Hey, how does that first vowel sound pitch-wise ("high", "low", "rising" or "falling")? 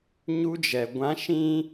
high